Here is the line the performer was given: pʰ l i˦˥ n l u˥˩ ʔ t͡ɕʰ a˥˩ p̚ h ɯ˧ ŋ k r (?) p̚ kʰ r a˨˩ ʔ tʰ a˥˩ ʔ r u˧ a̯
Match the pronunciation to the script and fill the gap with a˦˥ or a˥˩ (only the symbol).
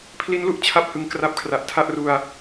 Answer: a˦˥